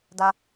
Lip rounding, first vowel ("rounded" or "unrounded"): unrounded